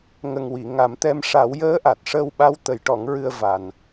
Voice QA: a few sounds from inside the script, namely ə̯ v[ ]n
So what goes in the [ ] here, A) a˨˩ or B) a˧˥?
A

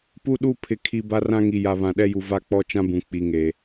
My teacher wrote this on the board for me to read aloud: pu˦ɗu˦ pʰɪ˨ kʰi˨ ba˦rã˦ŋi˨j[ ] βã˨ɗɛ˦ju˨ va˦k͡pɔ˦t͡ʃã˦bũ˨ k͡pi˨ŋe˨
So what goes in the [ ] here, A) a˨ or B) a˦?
A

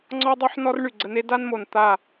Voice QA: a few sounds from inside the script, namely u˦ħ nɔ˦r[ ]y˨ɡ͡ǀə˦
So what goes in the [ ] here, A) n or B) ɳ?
B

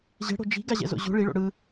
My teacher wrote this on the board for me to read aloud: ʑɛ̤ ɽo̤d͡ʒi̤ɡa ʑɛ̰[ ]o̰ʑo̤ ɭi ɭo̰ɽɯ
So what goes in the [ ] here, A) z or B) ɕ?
A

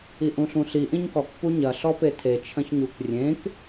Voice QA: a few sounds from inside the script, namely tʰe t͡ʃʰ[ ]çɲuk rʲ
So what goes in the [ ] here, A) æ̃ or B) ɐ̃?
B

